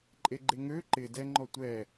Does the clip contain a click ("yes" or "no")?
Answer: yes